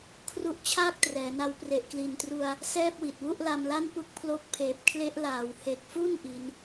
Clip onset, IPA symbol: kʰ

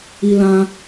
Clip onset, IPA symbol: i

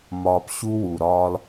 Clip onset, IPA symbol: m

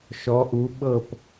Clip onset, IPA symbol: ʃ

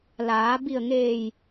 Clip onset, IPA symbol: l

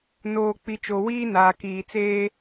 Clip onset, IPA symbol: n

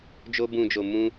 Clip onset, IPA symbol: d͡ʒ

